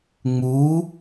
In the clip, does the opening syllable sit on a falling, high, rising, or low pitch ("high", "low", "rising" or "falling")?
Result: rising